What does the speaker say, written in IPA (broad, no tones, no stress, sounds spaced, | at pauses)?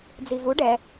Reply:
d͡z i v u ɖ ɛ